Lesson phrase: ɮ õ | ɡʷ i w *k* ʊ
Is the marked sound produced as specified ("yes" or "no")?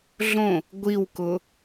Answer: yes